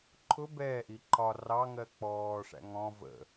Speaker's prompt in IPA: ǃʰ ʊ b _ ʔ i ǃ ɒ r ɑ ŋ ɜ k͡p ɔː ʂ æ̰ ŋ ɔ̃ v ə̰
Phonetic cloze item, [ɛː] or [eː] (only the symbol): ɛː